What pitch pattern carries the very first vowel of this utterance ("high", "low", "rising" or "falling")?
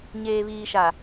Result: low